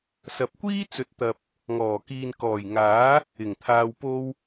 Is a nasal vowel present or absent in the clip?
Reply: absent